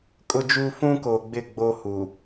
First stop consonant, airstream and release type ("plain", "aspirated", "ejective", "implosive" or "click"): ejective